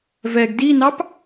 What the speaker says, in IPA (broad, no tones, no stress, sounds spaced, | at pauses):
v ɛ ɡ d i n ɑ p